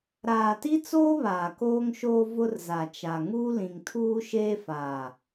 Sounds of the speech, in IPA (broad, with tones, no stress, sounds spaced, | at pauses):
ɾ aː˨ t i˦ t͡s oː˦ β aː˨ k oː˦ ŋ ʃ oː˦ v ʊ˦ r z a˨ t͡ʃ a˨ ŋ uː˦ l ĩ˨ ŋ tʰ uː˦ ʃ eː˦ f a˨